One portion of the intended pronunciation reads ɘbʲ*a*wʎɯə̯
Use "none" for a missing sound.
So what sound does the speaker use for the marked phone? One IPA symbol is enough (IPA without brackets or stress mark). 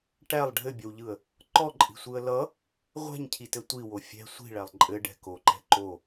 ʌ